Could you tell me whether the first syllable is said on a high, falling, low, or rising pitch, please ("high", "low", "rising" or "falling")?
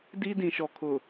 high